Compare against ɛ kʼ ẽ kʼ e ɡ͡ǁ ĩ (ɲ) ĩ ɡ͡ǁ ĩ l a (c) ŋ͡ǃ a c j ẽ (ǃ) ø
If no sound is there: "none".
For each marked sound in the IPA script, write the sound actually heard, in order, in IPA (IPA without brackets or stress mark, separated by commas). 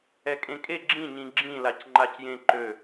ɲ, c, ǃ